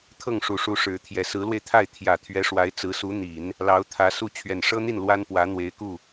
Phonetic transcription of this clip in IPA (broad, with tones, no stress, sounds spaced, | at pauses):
t̪ʰ ɤ˥˩ ŋ ʂ u˨˩ ʂ u˧˥ ʂ ɻ̩˧˥ t̪ʰ j ɛ˨˩ s ɹ̩˧˥ l w e˧ ɪ̯ t̪ʰ a˥˩ ɪ̯ t̪ʰ j ä˨˩ t̪ʰ ɥ ɛ˧˥ ʂ w a˧˥ ɪ̯ t͡s ɹ̩˧˥ s u˧˥ n̪ i˨˩˦ n | l ɑ˧˥ ʊ̯ t̪ʰ ä˧˥ s u˥˩ t͡ɕʰ ɥ ɛ˨˩ n ʂ ɤ˥ n̪ i˥˩ n l w a˥ n p w ä˧˥ n̪ w e˧˥ ɪ̯ k u˥˩